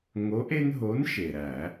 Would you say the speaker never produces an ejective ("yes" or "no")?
yes